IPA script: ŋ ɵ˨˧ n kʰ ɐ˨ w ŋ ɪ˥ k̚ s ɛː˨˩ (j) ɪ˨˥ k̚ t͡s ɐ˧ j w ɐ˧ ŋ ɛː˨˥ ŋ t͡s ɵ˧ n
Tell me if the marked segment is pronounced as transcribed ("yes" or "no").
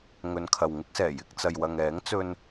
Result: yes